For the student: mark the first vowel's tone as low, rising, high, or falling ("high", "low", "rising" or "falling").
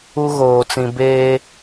high